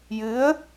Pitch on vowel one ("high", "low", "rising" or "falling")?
rising